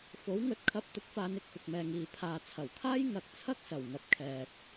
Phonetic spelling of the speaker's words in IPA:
f o˨˥ w ŋ ɵ˨˥ t̚ kʰ ɐ˧ p̚ t̪ ɪ˨˥ k̚ f aː˨˧ n ɪ˨ k̚ f ɪ˨ k̚ m ɛː˨ ŋ iː˨ pʰ aː˨ t͡sʰ ɐ˨˩ w kʰ aː˥ j ŋ ɐ˨ k̚ t͡sʰ ɐ˥ k̚ s ɐ˨˩ w ŋ ɐ˨ p̚ kʰ ɛː˨ t̚

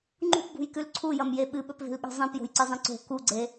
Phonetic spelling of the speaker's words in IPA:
ŋ͡ǃ ṳ p b ṳ j k ʉ l ǀʰ u j ɐ m j e ɓ ɨ ɓ ɵ p v e̤ l ɠ i̤ zˤ ĩ p j o̤ j ǀ ɨ zˤ ĩ ǀ o̤ k u ɡ͡ǀ e

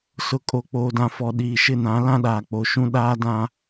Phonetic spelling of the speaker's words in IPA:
s ʊ˨ kʼ o˨ k͡p oː˨ d ã˨ f ɔ˨ ɗ iː˨ ʃ ɪ˦˨ n ã˨˦ l ã˦ ɗ aː˨ k͡p o˨ ʃ ũ˦ ɗ aː˦ d ã˦

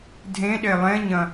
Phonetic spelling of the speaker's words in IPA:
dʱ ẽ ɗ e lˠ ẽ ɲ ɐ̃

